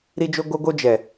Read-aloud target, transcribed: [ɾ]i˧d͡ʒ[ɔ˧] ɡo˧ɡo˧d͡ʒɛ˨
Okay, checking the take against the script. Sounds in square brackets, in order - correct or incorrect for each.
correct, incorrect

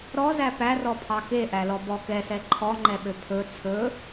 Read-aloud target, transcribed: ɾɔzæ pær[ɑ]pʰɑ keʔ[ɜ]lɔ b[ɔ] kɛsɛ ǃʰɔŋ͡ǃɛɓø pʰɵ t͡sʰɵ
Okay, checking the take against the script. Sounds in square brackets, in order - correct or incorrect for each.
incorrect, incorrect, correct

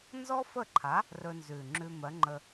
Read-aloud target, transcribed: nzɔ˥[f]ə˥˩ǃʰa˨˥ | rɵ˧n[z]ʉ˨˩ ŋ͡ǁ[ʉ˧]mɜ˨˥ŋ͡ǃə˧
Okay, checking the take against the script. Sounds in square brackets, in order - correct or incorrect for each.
correct, correct, correct

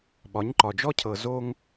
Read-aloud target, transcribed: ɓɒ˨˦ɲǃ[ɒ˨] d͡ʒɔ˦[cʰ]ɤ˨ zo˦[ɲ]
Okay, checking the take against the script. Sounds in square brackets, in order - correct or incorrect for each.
correct, correct, incorrect

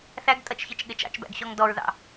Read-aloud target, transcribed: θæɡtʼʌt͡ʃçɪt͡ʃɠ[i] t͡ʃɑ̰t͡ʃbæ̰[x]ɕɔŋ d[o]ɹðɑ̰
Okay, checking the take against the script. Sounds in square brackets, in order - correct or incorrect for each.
incorrect, incorrect, incorrect

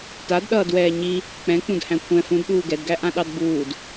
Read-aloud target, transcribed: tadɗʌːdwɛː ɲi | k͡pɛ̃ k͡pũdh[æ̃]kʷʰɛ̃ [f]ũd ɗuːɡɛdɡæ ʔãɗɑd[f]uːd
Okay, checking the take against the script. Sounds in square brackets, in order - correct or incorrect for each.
correct, correct, incorrect

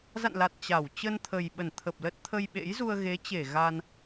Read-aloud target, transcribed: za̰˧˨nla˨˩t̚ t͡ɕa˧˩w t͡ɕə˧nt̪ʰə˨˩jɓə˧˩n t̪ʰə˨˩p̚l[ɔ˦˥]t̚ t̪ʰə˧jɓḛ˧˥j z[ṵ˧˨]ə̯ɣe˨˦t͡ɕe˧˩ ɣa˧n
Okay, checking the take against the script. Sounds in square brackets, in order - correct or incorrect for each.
incorrect, incorrect

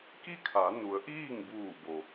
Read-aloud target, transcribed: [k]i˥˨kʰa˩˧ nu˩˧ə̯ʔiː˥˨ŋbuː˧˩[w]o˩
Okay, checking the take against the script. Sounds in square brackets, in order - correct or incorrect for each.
correct, incorrect

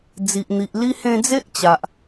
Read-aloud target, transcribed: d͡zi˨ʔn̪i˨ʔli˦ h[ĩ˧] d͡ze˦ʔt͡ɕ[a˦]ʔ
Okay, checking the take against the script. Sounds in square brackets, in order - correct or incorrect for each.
incorrect, incorrect

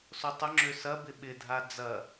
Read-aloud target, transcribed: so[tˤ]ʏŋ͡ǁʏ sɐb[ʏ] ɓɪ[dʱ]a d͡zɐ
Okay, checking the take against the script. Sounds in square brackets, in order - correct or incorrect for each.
correct, incorrect, correct

